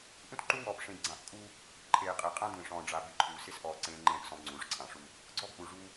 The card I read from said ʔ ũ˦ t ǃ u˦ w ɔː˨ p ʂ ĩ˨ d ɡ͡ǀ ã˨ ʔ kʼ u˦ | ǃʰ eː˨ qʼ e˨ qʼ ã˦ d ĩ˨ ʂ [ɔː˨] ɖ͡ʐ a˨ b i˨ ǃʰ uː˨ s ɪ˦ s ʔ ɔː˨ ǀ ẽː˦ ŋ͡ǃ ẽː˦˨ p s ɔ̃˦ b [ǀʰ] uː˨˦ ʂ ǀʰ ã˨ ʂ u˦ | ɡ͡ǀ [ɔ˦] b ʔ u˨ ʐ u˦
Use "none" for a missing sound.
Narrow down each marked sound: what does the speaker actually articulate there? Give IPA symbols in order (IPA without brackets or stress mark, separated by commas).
ɔ̃ː˨, ŋ͡ǀ, ɔ˦